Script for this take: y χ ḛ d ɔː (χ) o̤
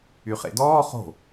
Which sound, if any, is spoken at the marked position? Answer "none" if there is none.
χ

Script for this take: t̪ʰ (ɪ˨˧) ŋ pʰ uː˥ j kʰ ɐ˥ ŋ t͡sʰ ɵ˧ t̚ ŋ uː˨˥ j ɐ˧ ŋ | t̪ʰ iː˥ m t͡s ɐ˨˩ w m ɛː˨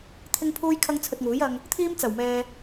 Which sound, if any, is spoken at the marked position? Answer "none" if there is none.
ɪ˥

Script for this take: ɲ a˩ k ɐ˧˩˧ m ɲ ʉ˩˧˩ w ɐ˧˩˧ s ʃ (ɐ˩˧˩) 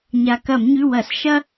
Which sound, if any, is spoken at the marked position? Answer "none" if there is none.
ɐ˥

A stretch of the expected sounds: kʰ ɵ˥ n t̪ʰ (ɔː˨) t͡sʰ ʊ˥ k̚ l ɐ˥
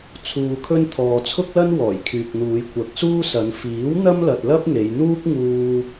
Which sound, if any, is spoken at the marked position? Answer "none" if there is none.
ɔː˨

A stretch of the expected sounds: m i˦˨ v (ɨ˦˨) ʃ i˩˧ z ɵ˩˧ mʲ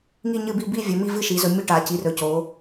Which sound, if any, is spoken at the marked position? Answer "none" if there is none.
ɨ˦˨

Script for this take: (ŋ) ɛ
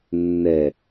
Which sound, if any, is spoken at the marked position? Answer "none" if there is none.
nː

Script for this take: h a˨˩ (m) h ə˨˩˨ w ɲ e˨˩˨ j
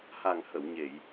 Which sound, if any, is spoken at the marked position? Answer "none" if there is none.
ŋ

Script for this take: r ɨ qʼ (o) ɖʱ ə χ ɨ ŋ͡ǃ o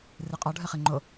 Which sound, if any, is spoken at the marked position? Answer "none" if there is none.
ɔ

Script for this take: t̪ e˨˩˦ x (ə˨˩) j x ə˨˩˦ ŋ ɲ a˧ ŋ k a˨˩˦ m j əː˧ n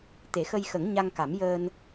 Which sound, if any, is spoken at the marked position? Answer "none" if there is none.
ə˧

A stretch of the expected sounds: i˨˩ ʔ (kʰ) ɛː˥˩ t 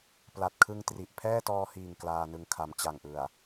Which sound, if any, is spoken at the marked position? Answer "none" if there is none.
pʰ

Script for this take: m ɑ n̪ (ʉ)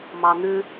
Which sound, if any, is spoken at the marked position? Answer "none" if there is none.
ʉ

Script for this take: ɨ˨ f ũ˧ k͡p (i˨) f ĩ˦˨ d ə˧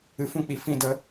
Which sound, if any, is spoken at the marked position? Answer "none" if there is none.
i˨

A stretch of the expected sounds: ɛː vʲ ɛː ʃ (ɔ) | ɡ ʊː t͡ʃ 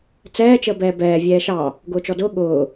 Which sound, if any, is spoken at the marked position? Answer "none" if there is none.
ɑ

